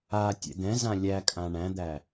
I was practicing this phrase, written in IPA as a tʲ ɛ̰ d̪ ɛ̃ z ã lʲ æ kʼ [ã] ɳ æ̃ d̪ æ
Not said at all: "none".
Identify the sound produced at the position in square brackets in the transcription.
ã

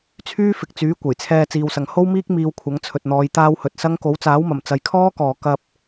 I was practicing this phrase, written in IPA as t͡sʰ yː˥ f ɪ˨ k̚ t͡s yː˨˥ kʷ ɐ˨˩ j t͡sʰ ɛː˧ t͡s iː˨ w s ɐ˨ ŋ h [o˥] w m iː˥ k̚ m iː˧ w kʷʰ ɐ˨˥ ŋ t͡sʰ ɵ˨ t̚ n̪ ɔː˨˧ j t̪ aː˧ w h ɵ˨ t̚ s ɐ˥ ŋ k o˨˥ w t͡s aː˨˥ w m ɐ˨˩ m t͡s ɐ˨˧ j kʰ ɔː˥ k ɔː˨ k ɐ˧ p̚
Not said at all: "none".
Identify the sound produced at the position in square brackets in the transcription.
o˥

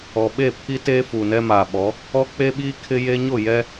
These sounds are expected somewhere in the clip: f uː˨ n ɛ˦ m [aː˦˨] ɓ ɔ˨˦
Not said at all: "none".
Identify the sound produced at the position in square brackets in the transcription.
aː˨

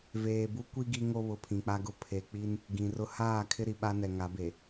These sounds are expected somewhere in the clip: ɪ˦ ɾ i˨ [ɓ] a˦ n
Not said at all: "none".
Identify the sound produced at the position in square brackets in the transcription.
ɓ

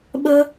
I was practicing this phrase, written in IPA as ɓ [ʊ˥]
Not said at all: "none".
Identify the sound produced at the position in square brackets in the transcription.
ə˥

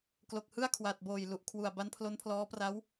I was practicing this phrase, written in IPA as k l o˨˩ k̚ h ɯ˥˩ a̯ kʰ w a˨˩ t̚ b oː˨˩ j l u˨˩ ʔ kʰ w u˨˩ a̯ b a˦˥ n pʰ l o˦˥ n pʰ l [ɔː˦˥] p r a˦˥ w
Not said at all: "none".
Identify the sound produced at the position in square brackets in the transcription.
ɔː˦˥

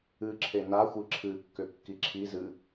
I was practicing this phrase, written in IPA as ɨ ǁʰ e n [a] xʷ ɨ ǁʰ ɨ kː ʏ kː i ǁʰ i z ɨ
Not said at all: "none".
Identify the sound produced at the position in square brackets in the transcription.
a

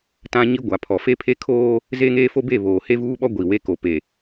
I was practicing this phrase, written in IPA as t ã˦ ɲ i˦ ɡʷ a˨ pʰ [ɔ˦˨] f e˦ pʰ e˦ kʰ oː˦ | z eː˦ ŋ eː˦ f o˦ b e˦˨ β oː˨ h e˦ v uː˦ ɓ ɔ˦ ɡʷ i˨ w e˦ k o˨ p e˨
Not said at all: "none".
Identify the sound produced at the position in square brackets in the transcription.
ɔ˨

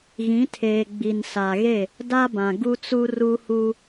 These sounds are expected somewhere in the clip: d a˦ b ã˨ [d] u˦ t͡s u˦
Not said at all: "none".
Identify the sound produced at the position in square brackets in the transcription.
ɡ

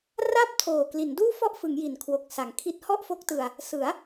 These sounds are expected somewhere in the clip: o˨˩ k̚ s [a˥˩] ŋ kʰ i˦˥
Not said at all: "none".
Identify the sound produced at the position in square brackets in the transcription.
a˩˦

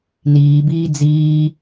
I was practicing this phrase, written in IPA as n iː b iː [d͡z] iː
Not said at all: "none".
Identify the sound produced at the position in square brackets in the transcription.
d͡z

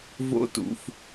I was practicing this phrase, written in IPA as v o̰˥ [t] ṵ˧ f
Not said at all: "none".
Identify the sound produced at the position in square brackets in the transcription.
t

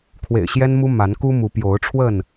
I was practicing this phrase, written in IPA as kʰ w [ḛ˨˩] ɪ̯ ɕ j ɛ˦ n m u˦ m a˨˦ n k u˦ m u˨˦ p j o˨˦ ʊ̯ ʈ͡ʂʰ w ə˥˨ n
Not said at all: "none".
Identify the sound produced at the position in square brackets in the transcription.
ḛ˨˩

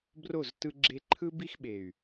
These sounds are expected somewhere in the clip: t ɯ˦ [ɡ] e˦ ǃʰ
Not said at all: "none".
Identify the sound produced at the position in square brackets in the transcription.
ɡ͡ǁ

